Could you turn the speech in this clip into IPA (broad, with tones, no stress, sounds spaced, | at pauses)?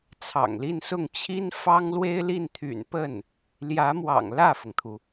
t͡sʰ ɑ̰˨˩ ŋ l i˥˧ n s ʊ˥˩ ŋ t͡ɕʰ i˥ n f ɑ˥ ŋ l w e˥ ɪ̯ l i˥˩ n t̪ʰ y̰˨˩ n p ə˥˩ n | l j ä˧˥ m w ɑ̰˨˩ ŋ l ä˥˩ f ʊ˩ ŋ t̪ʰ u˩